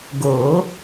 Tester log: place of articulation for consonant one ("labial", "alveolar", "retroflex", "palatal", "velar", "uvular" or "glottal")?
velar